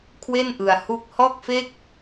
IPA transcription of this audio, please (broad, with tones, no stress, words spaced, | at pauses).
kʰwe˥˩nʔɯ˧a̯ hu˦˥k̚ hɔː˥˩k̚fe˥˩k̚